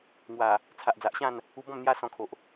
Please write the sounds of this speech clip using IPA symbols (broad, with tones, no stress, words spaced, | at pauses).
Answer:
ŋwa˨˩ | t͡sʰa˨ʔd͡za˨ʔɕã˥˧n | u˧bɔ̃˥˧m n̪ja˦sɔ̃˧kʰo˨ʔ